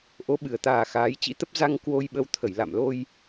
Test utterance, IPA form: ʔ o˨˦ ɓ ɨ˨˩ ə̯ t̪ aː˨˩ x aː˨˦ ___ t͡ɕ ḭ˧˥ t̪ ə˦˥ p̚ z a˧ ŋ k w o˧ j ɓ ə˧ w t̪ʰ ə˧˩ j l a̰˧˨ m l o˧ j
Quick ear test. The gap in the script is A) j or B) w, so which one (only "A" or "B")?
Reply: A